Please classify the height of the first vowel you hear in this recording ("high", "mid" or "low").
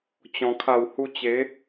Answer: mid